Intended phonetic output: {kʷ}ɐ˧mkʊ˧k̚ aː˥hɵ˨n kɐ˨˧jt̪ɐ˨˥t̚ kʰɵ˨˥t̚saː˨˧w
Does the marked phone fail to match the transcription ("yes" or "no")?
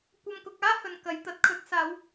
no